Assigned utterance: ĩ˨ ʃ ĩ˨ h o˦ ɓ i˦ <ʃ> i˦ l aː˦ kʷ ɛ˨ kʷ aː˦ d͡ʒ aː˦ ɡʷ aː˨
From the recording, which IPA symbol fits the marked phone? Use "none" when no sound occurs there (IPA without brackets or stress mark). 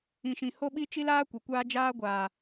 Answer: t͡ʃ